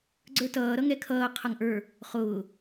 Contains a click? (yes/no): yes